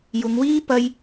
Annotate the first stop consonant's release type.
plain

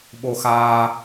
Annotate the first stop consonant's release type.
implosive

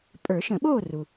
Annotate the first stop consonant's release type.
ejective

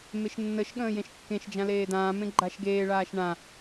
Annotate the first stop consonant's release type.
implosive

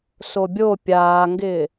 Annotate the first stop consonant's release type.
plain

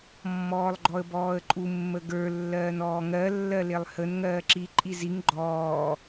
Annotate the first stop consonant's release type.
click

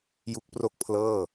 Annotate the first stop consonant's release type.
plain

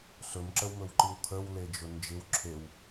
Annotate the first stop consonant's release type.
click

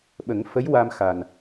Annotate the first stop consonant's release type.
implosive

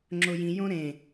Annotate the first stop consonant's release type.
click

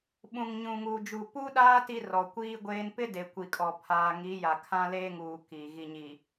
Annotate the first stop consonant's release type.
implosive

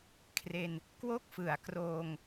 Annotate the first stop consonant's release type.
aspirated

